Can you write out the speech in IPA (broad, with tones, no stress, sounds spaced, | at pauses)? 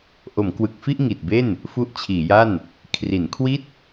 ʔ o˩˦ m k w ɯ˨˩ k̚ f i˥˩ ʔ ŋ i˨˩ t̚ b e˥˩ n | f u˦˥ ʔ t͡ɕʰ iː˩˦ j a˥˩ n | kʰ r i˩˦ n kʰ w i˥˩ t̚